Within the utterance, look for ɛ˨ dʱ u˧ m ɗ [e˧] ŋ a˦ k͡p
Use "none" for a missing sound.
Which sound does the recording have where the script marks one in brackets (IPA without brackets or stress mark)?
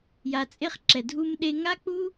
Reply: e˧